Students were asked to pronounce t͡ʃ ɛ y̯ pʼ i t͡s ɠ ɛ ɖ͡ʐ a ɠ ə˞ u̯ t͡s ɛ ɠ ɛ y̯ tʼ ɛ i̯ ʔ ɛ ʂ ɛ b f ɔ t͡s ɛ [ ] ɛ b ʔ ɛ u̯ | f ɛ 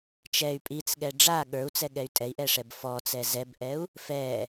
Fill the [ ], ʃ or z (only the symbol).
z